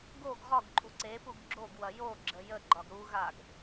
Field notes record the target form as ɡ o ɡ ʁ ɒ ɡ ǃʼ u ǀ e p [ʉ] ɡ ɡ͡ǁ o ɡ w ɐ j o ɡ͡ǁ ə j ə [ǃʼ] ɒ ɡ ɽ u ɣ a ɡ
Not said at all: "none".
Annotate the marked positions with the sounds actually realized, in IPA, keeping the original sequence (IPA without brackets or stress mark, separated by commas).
u, ɡ͡ǃ